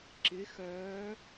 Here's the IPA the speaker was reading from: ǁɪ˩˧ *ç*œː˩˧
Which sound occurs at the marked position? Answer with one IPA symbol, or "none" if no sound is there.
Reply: x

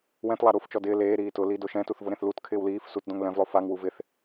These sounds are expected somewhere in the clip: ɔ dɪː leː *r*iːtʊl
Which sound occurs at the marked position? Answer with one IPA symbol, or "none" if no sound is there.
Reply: ɾ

